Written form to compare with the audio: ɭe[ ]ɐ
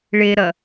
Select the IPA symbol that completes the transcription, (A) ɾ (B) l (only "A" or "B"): A